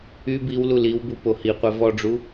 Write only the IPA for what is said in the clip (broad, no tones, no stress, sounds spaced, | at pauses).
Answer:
y b i w l u l i w b u p o h i qʷ ɛ v ɔ ɖ͡ʐ u